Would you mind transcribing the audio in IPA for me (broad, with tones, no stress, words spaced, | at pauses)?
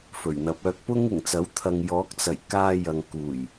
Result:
fɵ˨˩ɥn̪ɐ˨˥p̚œː˨˥k̚ pʊ˥ŋɪ˨˩ŋt͡sɐ˨˥w t̪ʰɐ˨ŋjɔː˨˥k̚t͡sɐ˨˩jkaː˧ jɐ˨ŋkuː˨˩j